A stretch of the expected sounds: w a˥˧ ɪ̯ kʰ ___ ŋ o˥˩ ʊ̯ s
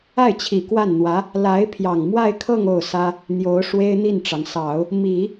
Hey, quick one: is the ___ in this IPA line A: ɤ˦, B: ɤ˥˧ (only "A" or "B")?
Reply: B